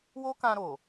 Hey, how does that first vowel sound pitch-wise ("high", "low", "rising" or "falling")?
high